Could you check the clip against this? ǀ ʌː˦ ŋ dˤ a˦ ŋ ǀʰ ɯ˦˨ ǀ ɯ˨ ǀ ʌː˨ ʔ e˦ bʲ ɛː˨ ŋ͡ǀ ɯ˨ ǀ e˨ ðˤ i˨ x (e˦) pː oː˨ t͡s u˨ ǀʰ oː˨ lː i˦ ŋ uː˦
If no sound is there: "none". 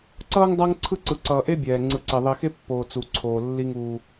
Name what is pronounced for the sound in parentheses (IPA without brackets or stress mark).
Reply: e˦